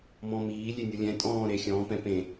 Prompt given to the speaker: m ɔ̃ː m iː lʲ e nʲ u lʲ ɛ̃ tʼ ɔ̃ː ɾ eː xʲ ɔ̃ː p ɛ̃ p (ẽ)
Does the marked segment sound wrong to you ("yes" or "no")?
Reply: no